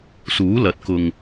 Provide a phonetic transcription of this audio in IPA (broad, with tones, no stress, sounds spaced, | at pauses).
s uː˨˥ l ɐ˨˥ t̚ k ʊ˨ ŋ